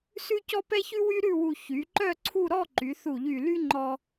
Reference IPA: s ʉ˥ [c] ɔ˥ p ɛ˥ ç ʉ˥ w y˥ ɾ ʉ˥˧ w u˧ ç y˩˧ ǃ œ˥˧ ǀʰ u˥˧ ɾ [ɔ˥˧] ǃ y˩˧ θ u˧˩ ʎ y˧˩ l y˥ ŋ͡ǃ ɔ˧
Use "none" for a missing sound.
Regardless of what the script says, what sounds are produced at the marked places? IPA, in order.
c, ɔ˥˧

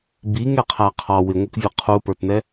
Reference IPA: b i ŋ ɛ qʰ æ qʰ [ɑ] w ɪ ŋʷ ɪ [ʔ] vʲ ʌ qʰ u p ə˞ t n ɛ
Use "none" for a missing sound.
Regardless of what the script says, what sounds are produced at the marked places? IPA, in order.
ɑ, k

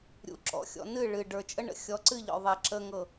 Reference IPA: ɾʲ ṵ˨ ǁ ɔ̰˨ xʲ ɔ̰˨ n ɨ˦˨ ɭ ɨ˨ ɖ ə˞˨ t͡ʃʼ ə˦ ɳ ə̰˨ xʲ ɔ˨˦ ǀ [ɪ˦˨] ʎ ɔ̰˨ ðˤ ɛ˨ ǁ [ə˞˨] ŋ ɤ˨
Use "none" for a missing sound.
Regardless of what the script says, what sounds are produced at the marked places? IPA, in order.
ɨ˦˨, ə˨

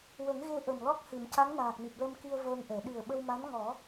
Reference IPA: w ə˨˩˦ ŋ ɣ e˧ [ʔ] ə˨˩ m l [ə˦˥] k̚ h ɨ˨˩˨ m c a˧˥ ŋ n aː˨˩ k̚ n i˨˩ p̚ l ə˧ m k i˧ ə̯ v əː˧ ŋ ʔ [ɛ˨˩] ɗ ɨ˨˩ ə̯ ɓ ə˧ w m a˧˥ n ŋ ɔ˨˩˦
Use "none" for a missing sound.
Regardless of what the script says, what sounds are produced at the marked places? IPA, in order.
ʔ, ɔ˦˥, ɛ˨˩˨

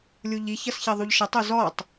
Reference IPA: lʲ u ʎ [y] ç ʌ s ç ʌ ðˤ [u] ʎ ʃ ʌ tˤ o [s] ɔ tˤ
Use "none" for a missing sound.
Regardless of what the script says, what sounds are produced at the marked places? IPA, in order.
i, u, z

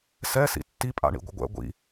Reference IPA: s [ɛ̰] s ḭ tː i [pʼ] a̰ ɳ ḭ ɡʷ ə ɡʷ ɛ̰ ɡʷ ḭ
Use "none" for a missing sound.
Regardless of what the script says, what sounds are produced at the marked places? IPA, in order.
ɛ, pʼ

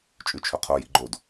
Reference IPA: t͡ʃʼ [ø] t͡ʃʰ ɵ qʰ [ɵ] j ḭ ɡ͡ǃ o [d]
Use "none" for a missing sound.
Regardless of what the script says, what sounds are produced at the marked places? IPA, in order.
ʉ, o, d

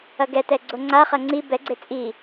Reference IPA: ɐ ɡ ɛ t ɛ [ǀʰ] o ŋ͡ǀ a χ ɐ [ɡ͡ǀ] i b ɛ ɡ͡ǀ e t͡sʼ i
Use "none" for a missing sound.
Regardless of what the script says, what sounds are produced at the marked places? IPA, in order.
ɡ͡ǀ, ŋ͡ǀ

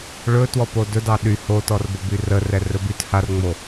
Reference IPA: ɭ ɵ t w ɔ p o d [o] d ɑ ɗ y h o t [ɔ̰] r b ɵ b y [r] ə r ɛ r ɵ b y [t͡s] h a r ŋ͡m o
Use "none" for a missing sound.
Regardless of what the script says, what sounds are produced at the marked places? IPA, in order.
ɵ, ɔ, r, t

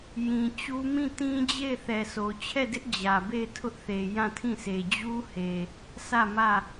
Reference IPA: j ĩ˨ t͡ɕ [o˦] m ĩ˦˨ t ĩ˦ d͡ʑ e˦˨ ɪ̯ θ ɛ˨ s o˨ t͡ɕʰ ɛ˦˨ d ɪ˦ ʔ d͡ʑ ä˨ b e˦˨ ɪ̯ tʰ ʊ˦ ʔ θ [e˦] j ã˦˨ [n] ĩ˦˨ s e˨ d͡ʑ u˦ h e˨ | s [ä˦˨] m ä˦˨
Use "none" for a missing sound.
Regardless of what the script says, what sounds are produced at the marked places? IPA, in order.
u˦, e˨, tʰ, ä˦˨

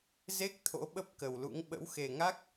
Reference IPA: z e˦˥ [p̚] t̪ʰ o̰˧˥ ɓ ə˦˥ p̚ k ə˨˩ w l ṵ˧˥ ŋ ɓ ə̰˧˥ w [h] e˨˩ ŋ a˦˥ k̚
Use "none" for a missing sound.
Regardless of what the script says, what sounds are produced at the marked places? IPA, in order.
k̚, x

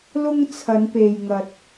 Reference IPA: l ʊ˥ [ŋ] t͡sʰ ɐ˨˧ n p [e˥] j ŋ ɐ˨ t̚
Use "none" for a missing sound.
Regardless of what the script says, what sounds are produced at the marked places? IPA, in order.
ŋ, e˨

